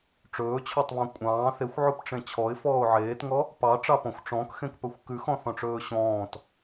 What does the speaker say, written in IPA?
ʈ͡ʂ ɵː t͡ɕʰ ɔ tˤ β ɔ̃ kʷʼ ɑ̃ː θ e xʷ ʕ u p ʈ͡ʂ ẽ t͡ɕʰ ɔ ɪ̯ f ɔː ʊ̯ ʕ eː t ŋ ɔ | p ɑ ʈ͡ʂ ɑ p ɔ̃ xʷ ʈ͡ʂ ɔ̃ k x ẽ k p ɵ xʷ k ʉ x ɔ̃ θ ɔ̃ ʈ͡ʂ ɵː ɕ ɔ̃ː t

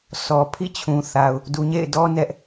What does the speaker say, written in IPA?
s ɔ˨ pʰ ḭ˦˨ t͡ɕʰ ũ˨ θ a˨ ʊ̯ | d u˨ ɲ ḛ˦˨ ɪ̯ d ɔ˦ n ɛ˦ ʔ

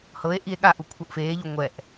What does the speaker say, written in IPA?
h ɤ e̯ ʔ i e̯ ɠ a ʔ u kʷʰ ɤ ʔ f eː ʎ u ŋʷ ɛ ʔ

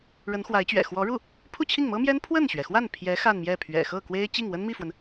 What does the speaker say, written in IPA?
ɻ ə˧˥ n x w a˧˥ ɪ̯ t͡ɕ ɥ ɛ̰˨˩ x w ɔ˧˥ ɻ u˥˩ | pʰ u˥˧ t͡ɕʰ i˥˩ ŋ m ɤ˥ m j ɛ˥ n pʰ w ə˥˩ n ɕ ɥ ɛ˩ x w a˥˩ n pʰ j ɛ˧˥ x a˥˧ n m j ɛ˥˩ pʰ ɥ ɛ̰˨˩ x ɤ˥˩ k w e˥ ɪ̯ t͡ɕ i˥˩ ŋ w ə˥ n m i˥˩ f w ə˩ n

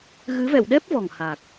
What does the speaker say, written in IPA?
ɣ ɨ˨˦ v ɛ̰˧˨ w ɗ ɛ˦˥ p̚ v ɔ˨˩ ŋ h aː˨˩ k̚

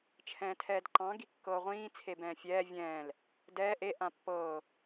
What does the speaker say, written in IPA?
t͡ʃʰ ɛ̃ː tʰ ɛː d ǃ ɑ̃ ɡ i kː ɤː ʁʷ ĩː t͡sʰ e b ɛ̃ː fʲ ɛː vʲ ɛ̃ː l | d ɛː ʔ e ʔ ã pː ɤː

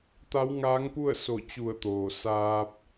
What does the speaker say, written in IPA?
t̪ a˧˥ w ŋ aː˧˥ ŋ p u˥˨ ə̯ s o˧˩ t͡ɕ u˧˩ ə̯ t̪ oː˩ s aː˧ p̚

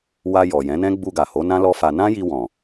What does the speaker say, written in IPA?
w a˧ j ɔ˨ j ɛ̃˨˦ n ɛ̃˦ ɡ͡b u˧ ɡ a˨ h o˨˦ n ã˦ l ɔ˦ f a˧ n ã˦ j i˧ w ɔ̃˨

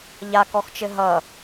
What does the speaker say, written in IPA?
ʎ a k ɔ x t͡ʃ ɘ ɦ ʌ

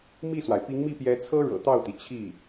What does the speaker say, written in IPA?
m i˥˩ s w a˩ ɪ̯ p i˧˥ ŋ m i˥˩ p j ɛ˧˥ t͡sʰ ɤ˥ ɻ ɤ̰˨˩ t̪ ɑ˥˩ ʊ̯ t̪ i˩ t͡ɕʰ i˥˩

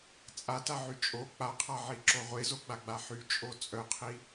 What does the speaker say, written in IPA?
t͡sʼ a t a ʕ y t͡ʃʼ o k͡p a qʰ a ʕ i ǁ o ʁʷ e z o ɡ͡b a ɡ͡b a ħ y t͡ʃʼ o t͡sʼ œ qʰ i

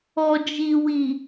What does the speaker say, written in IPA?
ɔ˨ d͡ʒ i˨ w i˨

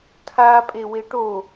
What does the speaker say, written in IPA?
tʰ a pʼ e w e ʈ o

